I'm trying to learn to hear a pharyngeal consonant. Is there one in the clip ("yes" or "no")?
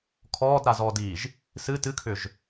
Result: no